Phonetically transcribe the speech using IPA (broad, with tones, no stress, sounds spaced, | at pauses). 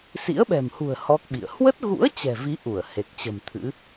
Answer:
s ḭ˧˥ ə̯ ɓ ɛ̤˨˩ m h ṳ˨˩ ə̯ h ɔ˦˥ k̚ ɓ ḭ˧˨ ə̯ h w ə˦˥ t̚ ɣ ṵ˧˥ ə̯ t͡ɕ ɛ̤˨˩ v i˨˦ ʔ u˧˩ ə̯ h e˨˩ k̚ t͡ɕ ə̤˨˩ m t̪ʰ ɨ̰˧˥